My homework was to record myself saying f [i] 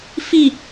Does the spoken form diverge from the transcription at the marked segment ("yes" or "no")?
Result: no